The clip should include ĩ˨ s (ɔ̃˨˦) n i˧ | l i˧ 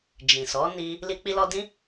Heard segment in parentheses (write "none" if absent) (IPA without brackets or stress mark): ɔ˨˦